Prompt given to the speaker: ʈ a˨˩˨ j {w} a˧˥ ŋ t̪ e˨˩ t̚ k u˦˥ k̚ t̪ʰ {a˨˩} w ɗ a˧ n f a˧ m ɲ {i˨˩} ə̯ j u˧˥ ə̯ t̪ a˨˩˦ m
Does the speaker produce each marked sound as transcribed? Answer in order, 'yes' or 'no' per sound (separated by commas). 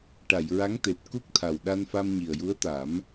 no, yes, yes